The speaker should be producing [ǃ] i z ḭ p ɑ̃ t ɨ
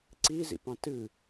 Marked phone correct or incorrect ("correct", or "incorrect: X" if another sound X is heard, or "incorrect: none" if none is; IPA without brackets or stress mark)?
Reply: incorrect: ǀ